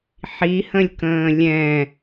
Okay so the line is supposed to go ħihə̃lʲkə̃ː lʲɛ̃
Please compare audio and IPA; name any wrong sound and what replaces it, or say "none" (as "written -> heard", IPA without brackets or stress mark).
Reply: none